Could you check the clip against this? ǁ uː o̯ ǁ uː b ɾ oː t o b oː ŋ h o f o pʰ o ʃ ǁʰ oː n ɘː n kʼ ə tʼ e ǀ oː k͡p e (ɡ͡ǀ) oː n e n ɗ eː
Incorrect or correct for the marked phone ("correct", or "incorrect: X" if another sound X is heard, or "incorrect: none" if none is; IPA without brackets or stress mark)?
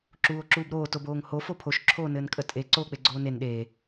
correct